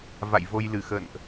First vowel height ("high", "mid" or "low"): low